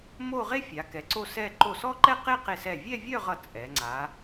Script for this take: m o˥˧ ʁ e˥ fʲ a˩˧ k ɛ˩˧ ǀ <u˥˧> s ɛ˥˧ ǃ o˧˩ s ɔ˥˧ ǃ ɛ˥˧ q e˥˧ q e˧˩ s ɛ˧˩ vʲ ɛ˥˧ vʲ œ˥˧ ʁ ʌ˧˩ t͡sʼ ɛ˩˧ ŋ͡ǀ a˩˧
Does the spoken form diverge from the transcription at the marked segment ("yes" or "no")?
yes